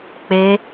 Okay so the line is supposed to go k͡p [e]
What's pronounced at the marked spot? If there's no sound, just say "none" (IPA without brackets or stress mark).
e